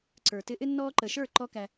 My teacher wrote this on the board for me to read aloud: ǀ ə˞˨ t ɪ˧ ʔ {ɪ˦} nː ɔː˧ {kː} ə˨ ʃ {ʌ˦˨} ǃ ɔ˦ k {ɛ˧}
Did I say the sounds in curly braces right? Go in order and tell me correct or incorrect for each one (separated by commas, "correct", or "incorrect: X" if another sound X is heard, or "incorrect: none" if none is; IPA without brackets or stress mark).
correct, incorrect: ǃ, incorrect: ə˞˦˨, incorrect: æ˧